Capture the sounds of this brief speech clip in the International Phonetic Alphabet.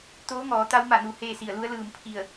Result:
t̪ oː˧˥ ŋ ɔː˩˧ t̪ a˧˥ w m a˧˩ n u˩ h eː˥˨ s i˧˩ ə̯ l u˧˥ ə̯ l ɯː˧˩ m pʰ i˧˩ ə̯

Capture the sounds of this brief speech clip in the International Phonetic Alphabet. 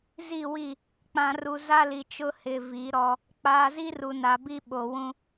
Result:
z i˦˨ w i˦˨ | k͡p ã˨ r u˨ z a˦ l i˨ t͡ʃ ʊ˦ h ɪ˨ v i˨˦ ɾ ɔ˦ | k͡p aː˨ z i˦ r u˨ n a˨ b i˦ ɓ o˨ w ũ˦

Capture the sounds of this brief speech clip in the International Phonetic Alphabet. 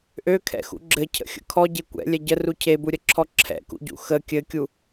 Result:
ʔ ø kʰ ɛ̰ x ṵ ɡ͡ǁ ɘ cʰ ə̰ xʲ ə̰ kʰ ɔ ɟ e kʷ ɛ̰ lʲ ɛ ɟ ə r u cʰ e b u ɾʲ ə ǁʰ ɔ ǁʰ ɛ̰ k ṵ ɟ ṵ x ə kʲ ɘ kʲ u

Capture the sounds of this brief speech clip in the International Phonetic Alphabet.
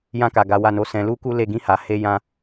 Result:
j ã˧ k a˨ ɡ a˨˦ w a˦˨ n o˧ s ɛ̃˧ l u˦ k u˦ l e˦˨ ɡ ĩ˧ h a˨ h e˧ j ã˧

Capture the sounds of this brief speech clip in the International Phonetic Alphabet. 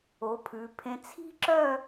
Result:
o˩˧ pʰ ʉ˩˧ pʰ ẽ˧ t͡sʰ i̤˥ ǁ œ˥˧

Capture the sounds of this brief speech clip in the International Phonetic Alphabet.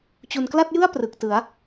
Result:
t͡ɕ u˨˩ n k l a˥˩ t̚ j ɯ˥˩ a̯ p r ɯ˨˩ k̚ t ɯ˩˦ a̯

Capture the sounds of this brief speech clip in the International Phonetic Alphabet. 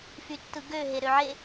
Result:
f y tː ɯ ɡ ø ɦ e ɾ ø ʕ e

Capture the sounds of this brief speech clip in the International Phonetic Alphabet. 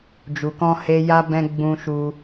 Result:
d͡ʒ u˨ k ɔ̃˧ h e˧ j a˦ b ɛ̃˧ ɡ͡b ũ˦ ʃ u˦

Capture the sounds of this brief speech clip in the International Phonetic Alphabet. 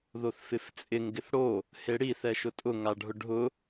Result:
ð o θ f ɪ f t͡sʼ ɪ ŋ ɡ ɪ θ ɽ o | h e ɽ i θ ɛ ʃ ʊ tʼ ʊ ŋ a ɖʱ ʊ ɖʱ ʊ

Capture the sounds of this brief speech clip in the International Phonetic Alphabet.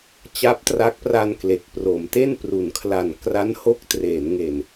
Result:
t͡ɕ a˦˥ p̚ t r a˦˥ k̚ p r a˧ n k l e˨˩ k̚ p r o˩˦ m t e˥˩ n p r u˩˦ n kʰ l a˨˩ n k r a˦˥ n h o˦˥ k̚ t r eː˩˦ n ŋ e˨˩ n

